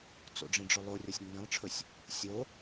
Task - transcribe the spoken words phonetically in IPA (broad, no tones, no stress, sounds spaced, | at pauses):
t͡s o̰ ɖ͡ʐ ĩ ɖ͡ʐ ɵ lˠ o rʲ ɔ sʲ nː ĩ lˠ ʈ͡ʂʰ ɵ sʲ | sʲ o